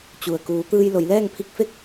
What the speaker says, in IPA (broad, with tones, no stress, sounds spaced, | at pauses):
t͡ɕ u˩ ə̯ k uː˩˧ t̪ ɯː˧ j l o˩˧ j l ɛː˥˨ ŋ pʰ i˧˥ k̚ f e˥˨ k̚